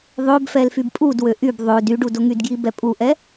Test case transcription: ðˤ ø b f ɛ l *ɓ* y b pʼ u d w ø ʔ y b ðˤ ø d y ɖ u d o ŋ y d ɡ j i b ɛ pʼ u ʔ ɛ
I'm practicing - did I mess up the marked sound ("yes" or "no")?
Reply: yes